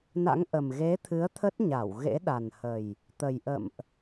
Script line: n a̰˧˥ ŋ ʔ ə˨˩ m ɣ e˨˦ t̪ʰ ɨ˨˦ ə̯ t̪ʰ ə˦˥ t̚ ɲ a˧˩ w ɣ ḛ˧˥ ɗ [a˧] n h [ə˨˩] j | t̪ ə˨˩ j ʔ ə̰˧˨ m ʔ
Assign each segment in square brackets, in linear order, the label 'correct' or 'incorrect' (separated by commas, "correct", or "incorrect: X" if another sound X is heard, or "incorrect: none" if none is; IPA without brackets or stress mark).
incorrect: a˨˩, correct